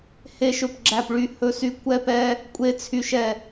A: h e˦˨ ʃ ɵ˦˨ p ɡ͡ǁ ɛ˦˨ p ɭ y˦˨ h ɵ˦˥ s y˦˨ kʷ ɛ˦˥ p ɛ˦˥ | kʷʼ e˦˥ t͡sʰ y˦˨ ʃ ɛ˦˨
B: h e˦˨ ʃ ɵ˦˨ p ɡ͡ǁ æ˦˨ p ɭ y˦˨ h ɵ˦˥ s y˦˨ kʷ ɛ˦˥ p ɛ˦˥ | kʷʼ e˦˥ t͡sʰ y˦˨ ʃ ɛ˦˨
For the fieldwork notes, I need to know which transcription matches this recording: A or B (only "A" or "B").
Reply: B